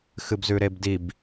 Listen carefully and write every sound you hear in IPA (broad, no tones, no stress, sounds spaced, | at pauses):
x ɨ b z ʉ ɾ e b d i b